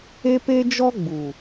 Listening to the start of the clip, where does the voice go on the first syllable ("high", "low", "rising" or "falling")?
high